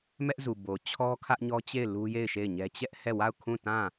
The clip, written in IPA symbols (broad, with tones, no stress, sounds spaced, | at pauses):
m ɛ˦ ʔ z u˨ b o˨ t͡ɕʰ ɔ˦ kʰ ä˦ ʔ ɲ ɔ˦ t͡ɕ e˦˨ ɪ̯ l u˦ j e˦˨ ɪ̯ ʃ e˦˨ ɪ̯ ɲ ɛ˦ t͡ɕ ɛ˦ ʔ h ɛ˦˨ w a˦˨ ʊ̯ kʰ ũ˦˨ t ã˦˨